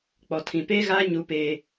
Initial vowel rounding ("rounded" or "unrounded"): rounded